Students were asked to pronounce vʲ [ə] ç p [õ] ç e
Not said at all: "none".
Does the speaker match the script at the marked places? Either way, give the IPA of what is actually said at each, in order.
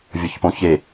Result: ʌ, õ

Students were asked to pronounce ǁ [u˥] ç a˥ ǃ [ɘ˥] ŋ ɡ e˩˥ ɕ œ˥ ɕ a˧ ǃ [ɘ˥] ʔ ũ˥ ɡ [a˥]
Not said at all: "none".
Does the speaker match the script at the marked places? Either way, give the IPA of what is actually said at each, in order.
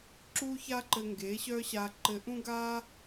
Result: u˥, ɘ˧, ɘ˧, a˥

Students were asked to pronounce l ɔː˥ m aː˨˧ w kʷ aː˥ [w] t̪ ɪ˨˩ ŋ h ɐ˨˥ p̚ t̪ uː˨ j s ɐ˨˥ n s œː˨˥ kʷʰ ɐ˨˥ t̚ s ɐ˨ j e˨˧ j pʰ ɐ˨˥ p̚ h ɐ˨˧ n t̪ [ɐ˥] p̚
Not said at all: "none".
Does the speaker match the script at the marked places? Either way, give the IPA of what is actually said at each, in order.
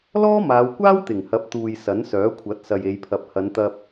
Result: w, ɐ˧

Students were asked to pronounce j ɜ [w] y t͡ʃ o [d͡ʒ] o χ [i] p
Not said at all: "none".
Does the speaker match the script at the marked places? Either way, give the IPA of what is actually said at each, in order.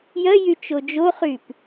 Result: j, d͡ʒ, y

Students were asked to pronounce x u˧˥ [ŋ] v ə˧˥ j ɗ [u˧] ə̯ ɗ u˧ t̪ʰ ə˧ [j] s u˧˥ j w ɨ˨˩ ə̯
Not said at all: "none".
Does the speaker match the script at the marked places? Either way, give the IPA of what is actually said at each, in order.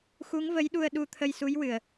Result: ŋ, u˧, j

